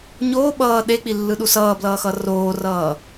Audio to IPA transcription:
ɲ oː ɓ ʌː ɗ e k͡p i lː ɯ ɗ u s ʌː b l ʌː x ʌ r oː r ʌː

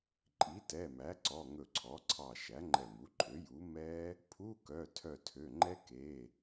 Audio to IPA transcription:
ǃʼ i˩˥ t ɛ˩˧˩ m æ˩˥ ǀ ɔ˩˧˩ ŋ ɵ˧˩ ǀʰ ɔ˩˥ ǀʰ ɑ˧˩ ʃ æ˩˥ ŋ͡ǃ ɛ˧˩ m u˩˥ ǃʼ ø˩˥ j u˩˥ m ɛ˦˥ | pʰ u˧˥˧ k œ˩˧˩ tʰ œ˧˩ tʰ ø˩˧˩ ŋ͡ǃ ɛ˦˥ k e˩˧˩

